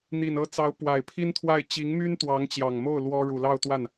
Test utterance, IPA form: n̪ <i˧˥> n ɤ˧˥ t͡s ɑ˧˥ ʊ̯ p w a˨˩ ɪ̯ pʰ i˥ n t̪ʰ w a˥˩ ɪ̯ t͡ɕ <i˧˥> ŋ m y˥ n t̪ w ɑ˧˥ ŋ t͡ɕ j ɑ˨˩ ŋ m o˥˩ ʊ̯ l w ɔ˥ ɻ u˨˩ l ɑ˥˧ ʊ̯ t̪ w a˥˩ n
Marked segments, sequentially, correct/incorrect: incorrect: i˨˩, correct

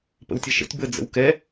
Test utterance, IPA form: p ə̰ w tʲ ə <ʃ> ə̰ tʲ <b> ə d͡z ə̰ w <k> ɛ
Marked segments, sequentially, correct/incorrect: correct, correct, correct

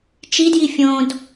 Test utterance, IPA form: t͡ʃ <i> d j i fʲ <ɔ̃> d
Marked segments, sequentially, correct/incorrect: correct, incorrect: õ

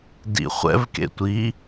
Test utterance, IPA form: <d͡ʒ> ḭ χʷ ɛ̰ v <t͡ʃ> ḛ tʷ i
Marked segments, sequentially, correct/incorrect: incorrect: d, incorrect: k

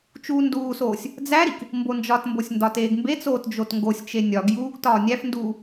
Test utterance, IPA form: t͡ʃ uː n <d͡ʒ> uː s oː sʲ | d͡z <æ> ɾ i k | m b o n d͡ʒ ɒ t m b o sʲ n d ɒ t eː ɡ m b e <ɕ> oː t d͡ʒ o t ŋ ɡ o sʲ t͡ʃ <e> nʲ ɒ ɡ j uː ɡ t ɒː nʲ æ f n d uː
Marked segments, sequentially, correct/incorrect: incorrect: d, correct, incorrect: t͡s, correct

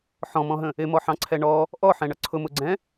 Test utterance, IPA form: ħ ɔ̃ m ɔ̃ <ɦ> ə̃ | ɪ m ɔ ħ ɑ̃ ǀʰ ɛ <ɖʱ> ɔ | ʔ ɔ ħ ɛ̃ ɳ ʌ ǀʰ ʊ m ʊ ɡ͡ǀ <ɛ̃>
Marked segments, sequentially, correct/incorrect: correct, incorrect: ɳ, correct

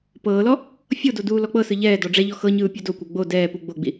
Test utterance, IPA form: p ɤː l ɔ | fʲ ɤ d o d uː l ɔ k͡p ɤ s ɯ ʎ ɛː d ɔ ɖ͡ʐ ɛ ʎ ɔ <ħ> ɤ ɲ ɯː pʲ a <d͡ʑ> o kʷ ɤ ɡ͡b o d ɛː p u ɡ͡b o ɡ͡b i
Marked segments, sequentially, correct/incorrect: incorrect: x, incorrect: d

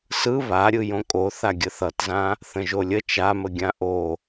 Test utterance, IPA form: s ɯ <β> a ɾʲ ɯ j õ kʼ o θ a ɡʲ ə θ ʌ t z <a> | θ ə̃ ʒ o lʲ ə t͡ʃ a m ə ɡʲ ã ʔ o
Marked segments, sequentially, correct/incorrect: correct, incorrect: ã

